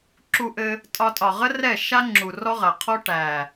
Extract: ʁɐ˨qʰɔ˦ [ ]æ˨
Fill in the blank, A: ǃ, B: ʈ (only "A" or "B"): B